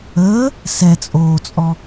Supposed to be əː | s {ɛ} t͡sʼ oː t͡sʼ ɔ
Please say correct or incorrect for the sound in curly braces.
correct